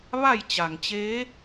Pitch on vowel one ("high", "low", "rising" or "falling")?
falling